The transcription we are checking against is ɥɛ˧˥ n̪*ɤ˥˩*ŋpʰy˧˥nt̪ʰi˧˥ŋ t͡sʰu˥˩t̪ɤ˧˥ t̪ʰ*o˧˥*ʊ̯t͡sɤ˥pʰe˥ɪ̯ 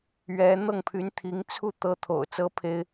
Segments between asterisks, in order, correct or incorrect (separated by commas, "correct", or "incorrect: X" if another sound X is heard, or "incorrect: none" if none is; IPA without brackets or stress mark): correct, incorrect: o̰˨˩